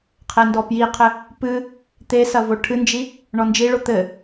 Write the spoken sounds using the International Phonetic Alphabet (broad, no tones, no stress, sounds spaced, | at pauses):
qʰ ɛ n d ɔ p j i qʰ ɘ | p ɨ | t̪ e s ɐ v o ʈʰ ɨ n d͡ʒ i | ɳ ɔ n d͡ʒ i ɭ o t̪ ɘ